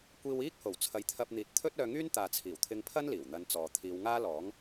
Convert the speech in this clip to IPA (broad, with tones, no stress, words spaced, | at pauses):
kʷiː˧wiː˥k̚ ho˨˩wt͡sʰɐ˨˥jt̪ʰɐ˧p̚n̪iː˨t̚ t̪ʰɵ˥t̚œː˧ŋyː˥n t̪aː˨t͡sʰiː˨˩wt̪ʰɪ˧ŋpʰɐ˥n liː˨˩wn̪ɐ˧nt͡sɔː˨ t̪ʰiː˨˧wŋaː˥lɔː˨˥ŋ